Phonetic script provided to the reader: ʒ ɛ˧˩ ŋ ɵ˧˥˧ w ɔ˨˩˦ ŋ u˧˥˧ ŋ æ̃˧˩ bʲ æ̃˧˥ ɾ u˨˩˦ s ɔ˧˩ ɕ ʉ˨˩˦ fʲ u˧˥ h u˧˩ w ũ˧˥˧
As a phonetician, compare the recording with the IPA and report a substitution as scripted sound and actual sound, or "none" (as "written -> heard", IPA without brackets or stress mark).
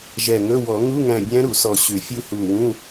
none